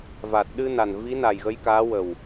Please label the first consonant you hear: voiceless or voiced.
voiced